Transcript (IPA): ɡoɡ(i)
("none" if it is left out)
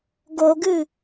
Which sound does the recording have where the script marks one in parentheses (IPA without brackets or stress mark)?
ɨ